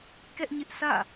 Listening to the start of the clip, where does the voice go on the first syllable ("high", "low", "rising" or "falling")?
high